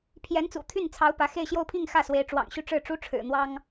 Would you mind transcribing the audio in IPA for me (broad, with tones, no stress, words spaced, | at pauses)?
pʰjɛ˧˥nt͡sṵ˨˩t̪ʰy˥˩nt͡sʰɑ˧˥ʊ̯ pä˧˥ xe˥˧ɪ̯ɕjo˥˧ʊ̯pʰi˥˧ŋ xä˥˩swe˧˥ɪ̯ʈ͡ʂwɑ̰˨˩ŋɕy˥˧ ʈ͡ʂɻ̩˥˩ʈ͡ʂu˥ʈ͡ʂʰɻ̩˨˩ n̪wɑ˥ŋ